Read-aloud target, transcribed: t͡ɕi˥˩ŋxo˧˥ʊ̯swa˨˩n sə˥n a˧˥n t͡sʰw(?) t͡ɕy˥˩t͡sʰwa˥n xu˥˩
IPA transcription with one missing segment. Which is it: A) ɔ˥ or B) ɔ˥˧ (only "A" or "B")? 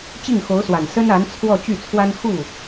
B